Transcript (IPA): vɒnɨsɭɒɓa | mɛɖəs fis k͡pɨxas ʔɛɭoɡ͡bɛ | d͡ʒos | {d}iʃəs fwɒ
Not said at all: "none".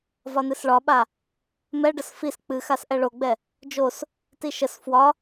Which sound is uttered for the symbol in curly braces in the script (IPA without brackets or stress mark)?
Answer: t